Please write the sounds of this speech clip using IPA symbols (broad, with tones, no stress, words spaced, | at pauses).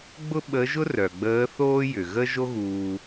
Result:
ɡ͡bʊ˥ɓə˧˥ʒʊ˥ rœ˩ ɡ͡bəː˧˥θoː˥jʏ˩ ɣə˥ ʒo˥ɣuː˧